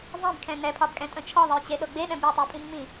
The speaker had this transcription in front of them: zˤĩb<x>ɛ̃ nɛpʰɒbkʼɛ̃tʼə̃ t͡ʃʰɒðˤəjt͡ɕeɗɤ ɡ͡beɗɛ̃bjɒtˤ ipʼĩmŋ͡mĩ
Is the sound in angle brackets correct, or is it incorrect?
incorrect